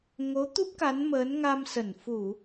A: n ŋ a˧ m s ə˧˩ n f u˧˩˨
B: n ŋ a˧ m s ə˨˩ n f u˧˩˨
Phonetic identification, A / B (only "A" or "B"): A